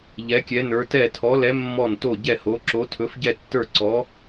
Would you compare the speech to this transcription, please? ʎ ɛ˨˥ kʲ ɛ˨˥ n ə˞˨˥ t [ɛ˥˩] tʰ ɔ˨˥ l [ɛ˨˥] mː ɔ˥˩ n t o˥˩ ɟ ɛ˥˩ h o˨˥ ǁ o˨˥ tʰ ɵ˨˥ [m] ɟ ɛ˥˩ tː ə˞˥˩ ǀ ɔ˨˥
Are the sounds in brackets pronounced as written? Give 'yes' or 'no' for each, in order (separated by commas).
yes, yes, no